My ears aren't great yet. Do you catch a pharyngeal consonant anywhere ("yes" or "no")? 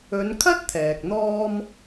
no